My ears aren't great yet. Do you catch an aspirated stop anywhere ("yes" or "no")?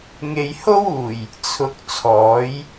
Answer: yes